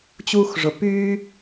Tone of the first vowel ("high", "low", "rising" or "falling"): high